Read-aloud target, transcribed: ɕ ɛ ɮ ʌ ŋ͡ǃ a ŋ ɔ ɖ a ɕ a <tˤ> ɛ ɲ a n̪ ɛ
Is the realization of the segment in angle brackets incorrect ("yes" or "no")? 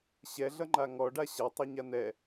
no